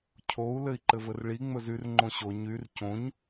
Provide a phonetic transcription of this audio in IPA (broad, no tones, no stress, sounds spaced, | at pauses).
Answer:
cʰ o u̯ l ɘ i̯ ǃ ɘ v ɘ r ɭ i ŋ͡m ɵ z y r ŋ͡ǃ õ ɕ o ɲ y r c õ ɲ